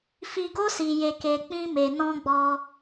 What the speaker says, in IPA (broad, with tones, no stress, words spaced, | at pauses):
fi˨ɡo˧ si˨je˨ke˨ k͡pĩ˧me˨nɔ̃˧ɡ͡bɔ˧